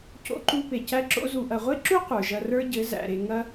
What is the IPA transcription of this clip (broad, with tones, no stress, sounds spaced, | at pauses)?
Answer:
c o̰˧ ǃ u˧ p e˨ c æ˧ ǁ o̰˧ z u˨ ʔ ɐ˨ ʁʷ e˦ ǁ u˦ qʷ ə˞˨ ʒ ɐ˧ r ə˞˦ ɟ ɘ˨˦ z æ̰˨ ɾ e˧ ŋ ɐ˦